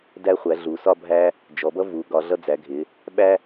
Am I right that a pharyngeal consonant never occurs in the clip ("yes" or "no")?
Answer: yes